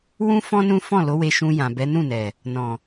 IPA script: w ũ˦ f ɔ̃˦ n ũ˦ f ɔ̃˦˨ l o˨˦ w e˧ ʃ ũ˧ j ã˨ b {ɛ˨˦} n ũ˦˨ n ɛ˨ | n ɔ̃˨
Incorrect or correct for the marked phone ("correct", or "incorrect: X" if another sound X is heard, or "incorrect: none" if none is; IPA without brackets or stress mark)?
correct